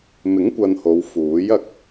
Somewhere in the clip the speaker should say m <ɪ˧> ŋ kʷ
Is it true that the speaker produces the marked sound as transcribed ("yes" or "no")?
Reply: no